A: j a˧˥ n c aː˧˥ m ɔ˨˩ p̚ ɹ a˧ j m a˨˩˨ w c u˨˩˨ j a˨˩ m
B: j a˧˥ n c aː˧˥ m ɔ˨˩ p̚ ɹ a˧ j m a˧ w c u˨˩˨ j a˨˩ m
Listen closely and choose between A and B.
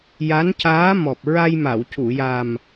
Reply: A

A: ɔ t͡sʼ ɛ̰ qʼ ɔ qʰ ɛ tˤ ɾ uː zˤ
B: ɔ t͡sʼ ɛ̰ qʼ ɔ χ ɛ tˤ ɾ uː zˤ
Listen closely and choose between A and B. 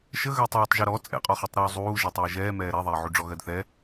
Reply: B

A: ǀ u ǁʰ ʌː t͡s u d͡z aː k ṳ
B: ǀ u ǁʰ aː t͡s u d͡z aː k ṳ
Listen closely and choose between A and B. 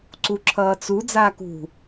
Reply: A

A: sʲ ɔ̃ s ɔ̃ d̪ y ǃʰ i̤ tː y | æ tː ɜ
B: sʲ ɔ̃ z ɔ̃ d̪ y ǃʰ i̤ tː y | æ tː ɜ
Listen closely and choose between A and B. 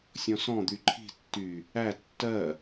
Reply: A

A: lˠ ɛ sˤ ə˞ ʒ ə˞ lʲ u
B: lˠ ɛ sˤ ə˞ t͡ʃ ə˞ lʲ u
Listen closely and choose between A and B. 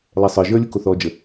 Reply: A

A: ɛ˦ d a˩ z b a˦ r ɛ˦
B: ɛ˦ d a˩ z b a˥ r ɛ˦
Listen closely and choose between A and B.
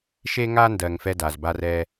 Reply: A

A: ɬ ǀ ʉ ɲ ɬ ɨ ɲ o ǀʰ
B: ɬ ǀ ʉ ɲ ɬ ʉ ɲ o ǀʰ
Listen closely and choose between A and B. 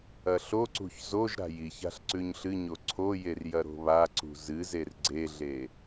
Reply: A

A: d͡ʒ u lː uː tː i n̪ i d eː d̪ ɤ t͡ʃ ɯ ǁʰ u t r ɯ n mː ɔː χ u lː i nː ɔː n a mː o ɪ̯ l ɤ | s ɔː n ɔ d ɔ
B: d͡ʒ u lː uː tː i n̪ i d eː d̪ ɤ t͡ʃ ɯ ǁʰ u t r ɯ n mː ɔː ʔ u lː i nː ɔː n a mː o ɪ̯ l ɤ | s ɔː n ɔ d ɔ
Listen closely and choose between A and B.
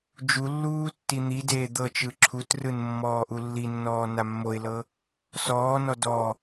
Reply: B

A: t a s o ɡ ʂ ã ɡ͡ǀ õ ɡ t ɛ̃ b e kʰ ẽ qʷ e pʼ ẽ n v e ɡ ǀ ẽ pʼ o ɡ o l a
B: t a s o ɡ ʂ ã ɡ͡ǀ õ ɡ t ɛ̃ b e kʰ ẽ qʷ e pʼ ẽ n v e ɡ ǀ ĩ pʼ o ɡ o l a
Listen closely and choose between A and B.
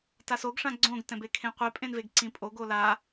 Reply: B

